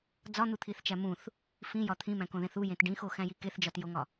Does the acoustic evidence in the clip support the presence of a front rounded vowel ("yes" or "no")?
no